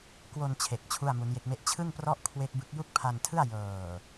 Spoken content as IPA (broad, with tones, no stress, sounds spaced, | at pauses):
k w o˧ n t͡ɕʰ e˨˩ k̚ t͡ɕʰ u˥˩ a̯ m u˦˥ n j e˦˥ k̚ m e˥˩ ʔ t͡ɕʰ ɯ˥˩ ŋ p r ɔ˦˥ ʔ kʰ w e˦˥ k̚ b ɯ˦˥ k̚ j u˥˩ k̚ pʰ a˧ n tʰ ɯ˥˩ a̯ j ɤː˨˩